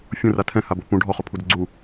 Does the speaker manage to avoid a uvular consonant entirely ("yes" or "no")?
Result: no